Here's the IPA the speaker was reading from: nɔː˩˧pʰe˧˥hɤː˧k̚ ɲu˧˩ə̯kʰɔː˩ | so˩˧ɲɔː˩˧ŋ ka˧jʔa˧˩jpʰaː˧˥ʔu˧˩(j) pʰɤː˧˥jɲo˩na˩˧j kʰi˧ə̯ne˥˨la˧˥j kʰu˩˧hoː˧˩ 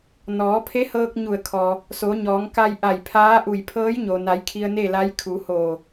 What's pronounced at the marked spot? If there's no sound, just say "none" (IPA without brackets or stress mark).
j